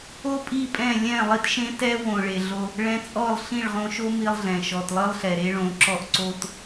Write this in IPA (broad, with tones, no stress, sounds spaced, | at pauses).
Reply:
o˦ pʼ i˦˨ pʼ ɛ̃˦˨ lʲ ɛ̃˦˨ lˠ i˦ t ʃ ẽ˦ t ɛ˦ w õ˨ ɭ e˨ ɮ o˧ | ɭ ɛ̃˧ t͡sʼ ɔ˦˨ lˠ ɬ ĩ˦˨ ɭ ʁ õ˧ ʃ o˦ m i˦ lˠ ɮ ɛ̃˨ ʃ ɔ˨ t lˠ ɨ˦ lˠ ɬ ɛ˨ ɾ e˦ ɭ õ˨˦ ǁ ɔ˦ ʔ ǀ o˦ t